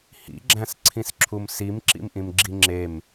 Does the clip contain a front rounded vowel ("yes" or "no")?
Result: no